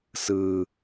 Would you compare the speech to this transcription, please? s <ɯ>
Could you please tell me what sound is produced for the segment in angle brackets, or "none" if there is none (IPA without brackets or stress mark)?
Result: ɯː